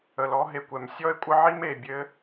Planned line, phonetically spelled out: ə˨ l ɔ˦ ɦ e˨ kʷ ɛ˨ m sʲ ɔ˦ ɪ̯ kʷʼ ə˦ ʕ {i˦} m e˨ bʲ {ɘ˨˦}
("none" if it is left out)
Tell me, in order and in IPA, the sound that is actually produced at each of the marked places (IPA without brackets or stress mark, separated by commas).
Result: i˦, ɘ˨˦